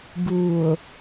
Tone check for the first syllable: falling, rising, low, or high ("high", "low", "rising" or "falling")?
low